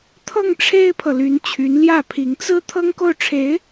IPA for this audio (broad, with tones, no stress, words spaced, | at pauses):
t̪ʰɤ˥˩ŋ ʈ͡ʂʰe˥ɪ̯pʰɤ˨ly˧˥n t͡ɕʰy˧˥nljä˥˩pʰi˧˥ŋ t͡sɹ̩˥ t̪ʰɤ˥ŋko˥˩ʊ̯ʈ͡ʂʰe˧˥ɪ̯